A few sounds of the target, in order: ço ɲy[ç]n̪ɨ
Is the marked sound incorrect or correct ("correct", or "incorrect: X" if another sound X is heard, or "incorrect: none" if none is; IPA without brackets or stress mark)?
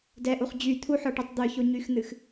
incorrect: x